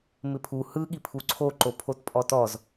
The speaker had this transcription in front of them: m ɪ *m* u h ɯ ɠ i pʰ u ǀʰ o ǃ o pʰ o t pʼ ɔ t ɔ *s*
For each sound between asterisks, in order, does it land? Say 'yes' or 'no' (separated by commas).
no, no